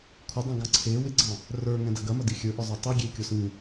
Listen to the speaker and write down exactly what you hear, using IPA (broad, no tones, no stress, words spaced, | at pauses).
kʷʰɪdˤə̃ ɡɑ̃ǀʰe wɪɡ͡ǀɑ̃ | rə˞ ŋɛ̃dɐɡɐmɐ dixʲə˞ʔə˞zˤo tˤe ɡʲekʲo sĩ